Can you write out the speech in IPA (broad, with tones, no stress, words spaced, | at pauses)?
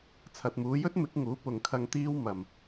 t͡sʰɐ˨t̚muː˨˧jɵ˥t̚ mɪ˨˥k̚ŋuː˨˥pʊ˨ŋkʰɐ˧ŋ t̪iː˥w mɐ˨m